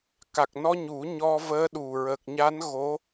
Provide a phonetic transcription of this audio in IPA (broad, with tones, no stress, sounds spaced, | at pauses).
k a˨˩ k̚ n ɔ˧ ɲ u˨˩˦ ɲ ɔ˧ v əː˧˥ ɗ u˨˩ ɹ ə˨˩ k̚ ɲ a˧˥ n ɣ o˧˥